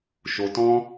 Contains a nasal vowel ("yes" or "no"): yes